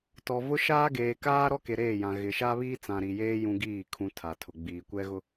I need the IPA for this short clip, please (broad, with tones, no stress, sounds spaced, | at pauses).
t ɔ˨ v ʊ˦ ʃ aː˦ ɡ eː˨ k aː˦ ɾ ɔ˦ k e˨ ɾ eː˦˨ j ã˨ ɣ ɪ˨ ʃ a˦ β iː˦ t͡s ã˨ ɾ i˨ j eː˦ j ũ˦ ɡ iː˦˨ kʰ ũ˨ tʰ a˨ tʰ ʊ˨ ɡ͡b iː˨ kʷ ɛ˦ ɣ ʊ˦